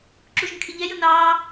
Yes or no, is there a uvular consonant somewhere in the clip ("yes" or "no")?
no